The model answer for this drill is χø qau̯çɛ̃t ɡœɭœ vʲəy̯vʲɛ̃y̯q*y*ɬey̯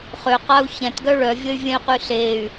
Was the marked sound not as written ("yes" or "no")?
no